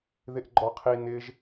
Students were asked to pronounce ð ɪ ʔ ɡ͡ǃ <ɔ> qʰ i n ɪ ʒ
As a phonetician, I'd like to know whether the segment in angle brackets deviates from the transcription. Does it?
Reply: no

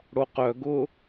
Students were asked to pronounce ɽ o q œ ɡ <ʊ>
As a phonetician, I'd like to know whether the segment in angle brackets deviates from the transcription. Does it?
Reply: no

